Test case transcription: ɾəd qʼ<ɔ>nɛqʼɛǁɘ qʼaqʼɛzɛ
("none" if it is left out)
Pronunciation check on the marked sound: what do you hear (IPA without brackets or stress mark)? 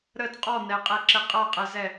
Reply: ɔ